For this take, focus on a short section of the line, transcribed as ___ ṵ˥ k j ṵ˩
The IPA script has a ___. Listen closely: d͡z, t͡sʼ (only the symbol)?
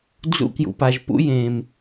d͡z